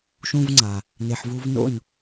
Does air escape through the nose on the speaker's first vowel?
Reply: yes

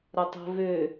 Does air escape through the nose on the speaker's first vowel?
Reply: no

